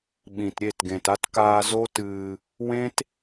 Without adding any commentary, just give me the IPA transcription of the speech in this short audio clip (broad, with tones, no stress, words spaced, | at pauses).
ɓĩ˨tɾʲe˦˨tɡẽ˨ta˦t kaː˧ zo˦tɨː˧ | wẽ˦t